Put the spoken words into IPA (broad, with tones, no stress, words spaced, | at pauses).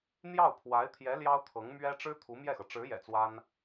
n̪jɑ˥˩ʊ̯pʰwa˧˥ɪ̯t̪ʰjɛ˧˥ ljɑ˥ʊ̯t̪ʰɤ˧˥ŋmɥɛ˥ ʈ͡ʂɻ̩˥ t̪ʰu˧˥mjɛ˥˩xɤ˩ ʈ͡ʂɻ̩˧˥jɛ̰˨˩ t͡swa˥n